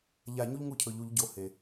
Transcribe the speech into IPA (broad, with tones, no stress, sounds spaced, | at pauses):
ʎ a˧˩˧ ɲ u˦ ʎ ŋ u˦ cʰ ɵ˩˧ ʎ u˩˧ ʎ ɟ o˩˥ h e˩